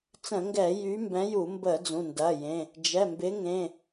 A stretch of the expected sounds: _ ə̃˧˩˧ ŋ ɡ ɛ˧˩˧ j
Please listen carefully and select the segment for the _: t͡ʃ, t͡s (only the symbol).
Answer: t͡s